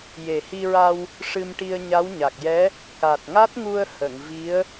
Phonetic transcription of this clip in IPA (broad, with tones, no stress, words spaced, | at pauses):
je˨˩hi˧ɹa˧w | ʂɨ˧mʈi˧ə̯ɲa˧˥w ɲa˨˩k̚jɛ˧˥ | ka˨˩t̚ŋa˦˥t̚ŋu˧ə̯ hə˨˩˨ŋvi˧˥ə̯